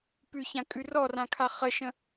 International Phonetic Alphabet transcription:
p ʉ ç ã kʼ ʉ r ɔ r ã kʰ a χ ə ʃ ə̃

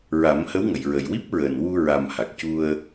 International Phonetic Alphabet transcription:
ɹ a˨˩˦ m h ə˧˥ w ŋ ə˨˩˨ j ɹ ə˨˩ j w i˦˥ p̚ ɹ əː˨˩ n w u˧ ɹ a˨˩ m h a˨˩ k̚ c u˧ ə̯

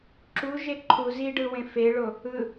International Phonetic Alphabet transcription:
ǁ u ʒ e ǃʰ u z i ɖ ɯ w ẽ f e ɭ o | ɯ

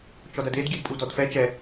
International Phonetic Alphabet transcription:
t͡ʃ ɔ d ɐ d e d ɡʲ ɛ d pʼ u d ɔ d f ɛ t͡ʃ ɛ

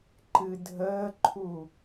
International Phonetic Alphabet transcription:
ǃ ɨ dʱ əː ǃʰ u

